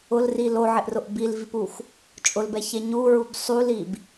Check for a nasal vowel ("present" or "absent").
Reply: absent